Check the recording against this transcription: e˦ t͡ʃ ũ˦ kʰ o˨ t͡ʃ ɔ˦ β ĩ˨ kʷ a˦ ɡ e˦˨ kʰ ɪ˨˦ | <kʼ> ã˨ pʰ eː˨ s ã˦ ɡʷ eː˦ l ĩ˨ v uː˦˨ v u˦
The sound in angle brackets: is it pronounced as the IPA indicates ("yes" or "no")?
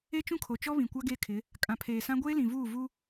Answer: yes